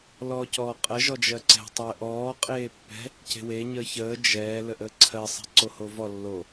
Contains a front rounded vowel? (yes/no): no